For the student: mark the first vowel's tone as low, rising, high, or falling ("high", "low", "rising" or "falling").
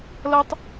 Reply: high